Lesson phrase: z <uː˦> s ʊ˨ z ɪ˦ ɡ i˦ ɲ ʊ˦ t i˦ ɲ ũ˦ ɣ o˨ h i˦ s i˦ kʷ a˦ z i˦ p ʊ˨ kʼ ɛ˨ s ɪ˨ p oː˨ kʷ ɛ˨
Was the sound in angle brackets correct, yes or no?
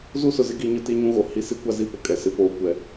no